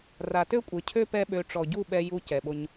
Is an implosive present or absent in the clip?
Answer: present